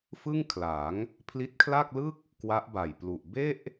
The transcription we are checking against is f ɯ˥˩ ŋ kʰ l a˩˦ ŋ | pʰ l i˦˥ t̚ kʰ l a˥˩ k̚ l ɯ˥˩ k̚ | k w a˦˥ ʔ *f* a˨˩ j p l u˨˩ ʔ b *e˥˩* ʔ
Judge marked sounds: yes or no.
no, yes

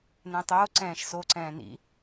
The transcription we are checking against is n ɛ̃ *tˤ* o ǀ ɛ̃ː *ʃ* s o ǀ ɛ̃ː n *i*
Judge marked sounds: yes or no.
yes, yes, no

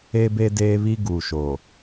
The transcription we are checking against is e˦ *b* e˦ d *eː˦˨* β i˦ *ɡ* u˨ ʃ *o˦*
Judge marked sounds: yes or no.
yes, no, yes, no

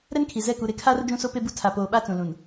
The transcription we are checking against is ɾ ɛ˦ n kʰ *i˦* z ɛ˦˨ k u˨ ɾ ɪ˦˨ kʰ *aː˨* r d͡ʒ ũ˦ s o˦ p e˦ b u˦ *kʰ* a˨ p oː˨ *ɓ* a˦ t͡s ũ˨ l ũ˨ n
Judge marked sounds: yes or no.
no, no, no, yes

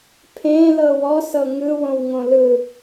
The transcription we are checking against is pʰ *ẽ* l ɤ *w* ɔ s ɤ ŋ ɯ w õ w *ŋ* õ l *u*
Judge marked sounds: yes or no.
yes, yes, yes, no

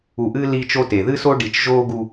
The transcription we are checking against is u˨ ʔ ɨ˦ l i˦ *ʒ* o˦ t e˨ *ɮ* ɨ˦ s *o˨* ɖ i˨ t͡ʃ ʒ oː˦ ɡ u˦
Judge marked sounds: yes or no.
no, no, no

